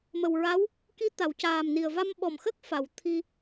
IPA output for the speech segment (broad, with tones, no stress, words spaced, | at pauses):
mə˨˩wɹa˧˥w | ki˧˥ t̪a˨˩˨wcaː˨˩mni˨˩ə̯ va˧mɓɔ˨˩mxə˦˥k̚ fa˨˩˨wt̪ʰi˧